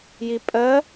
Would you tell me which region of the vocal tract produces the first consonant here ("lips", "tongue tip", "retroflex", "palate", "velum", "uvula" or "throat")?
palate